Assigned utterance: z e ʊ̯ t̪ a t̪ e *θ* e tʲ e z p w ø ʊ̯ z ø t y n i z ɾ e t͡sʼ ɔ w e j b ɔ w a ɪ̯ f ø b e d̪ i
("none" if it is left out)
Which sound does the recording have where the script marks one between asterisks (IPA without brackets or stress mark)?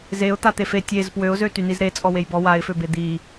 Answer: f